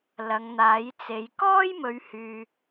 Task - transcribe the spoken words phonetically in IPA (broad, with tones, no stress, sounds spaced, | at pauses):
l ɐ˨˧ ŋ n̪ aː˨˥ j t͡s e˨˧ j k ɔː˥ j m ɵ˨˧ ɥ h yː˨